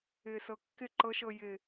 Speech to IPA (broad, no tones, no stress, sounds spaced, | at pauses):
ɪː s ɤ kː ɪ ǃ ɤ ʃ ɤ j ɪ